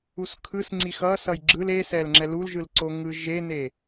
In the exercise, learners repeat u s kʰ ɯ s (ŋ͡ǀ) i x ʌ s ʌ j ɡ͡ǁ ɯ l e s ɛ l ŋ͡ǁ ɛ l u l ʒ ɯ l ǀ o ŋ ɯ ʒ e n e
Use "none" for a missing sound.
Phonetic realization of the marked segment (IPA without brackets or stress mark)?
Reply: ŋ͡ǀ